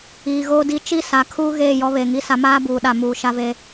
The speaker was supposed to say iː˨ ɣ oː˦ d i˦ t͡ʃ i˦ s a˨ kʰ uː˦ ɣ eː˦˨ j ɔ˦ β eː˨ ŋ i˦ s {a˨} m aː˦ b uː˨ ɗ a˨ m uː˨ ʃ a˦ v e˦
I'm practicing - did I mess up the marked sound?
yes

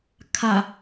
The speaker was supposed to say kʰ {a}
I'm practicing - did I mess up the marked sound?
no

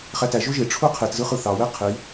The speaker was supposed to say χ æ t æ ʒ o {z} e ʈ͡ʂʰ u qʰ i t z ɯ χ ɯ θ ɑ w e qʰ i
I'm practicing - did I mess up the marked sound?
yes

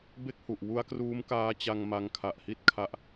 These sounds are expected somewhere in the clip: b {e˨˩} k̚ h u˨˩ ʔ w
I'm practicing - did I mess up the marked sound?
yes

